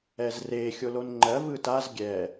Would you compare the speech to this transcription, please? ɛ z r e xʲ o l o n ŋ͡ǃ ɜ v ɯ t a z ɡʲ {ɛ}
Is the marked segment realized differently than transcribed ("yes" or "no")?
no